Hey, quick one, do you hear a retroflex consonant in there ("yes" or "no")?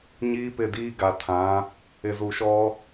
no